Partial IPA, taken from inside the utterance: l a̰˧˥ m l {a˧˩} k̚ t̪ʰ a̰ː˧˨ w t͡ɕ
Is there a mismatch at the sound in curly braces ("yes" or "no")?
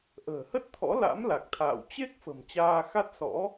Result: yes